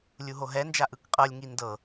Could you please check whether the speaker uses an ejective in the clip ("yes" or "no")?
yes